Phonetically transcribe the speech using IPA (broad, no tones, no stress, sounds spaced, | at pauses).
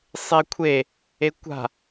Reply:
sˤ e kʷʰ e | e kʷ a̤